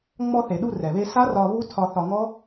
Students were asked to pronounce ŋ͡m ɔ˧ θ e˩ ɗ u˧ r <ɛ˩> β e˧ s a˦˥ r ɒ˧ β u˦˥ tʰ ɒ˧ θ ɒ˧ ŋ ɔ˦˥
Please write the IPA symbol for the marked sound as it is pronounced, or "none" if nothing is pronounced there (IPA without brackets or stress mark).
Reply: ɛ˩